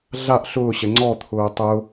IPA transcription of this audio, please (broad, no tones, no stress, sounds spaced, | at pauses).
ɮ a ʔ ɬ ʊː ɕ ɛ ŋ͡ǀ ɔ t̪ʰ ʊː tˤ ʊ